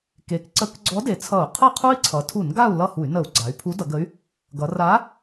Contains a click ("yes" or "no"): yes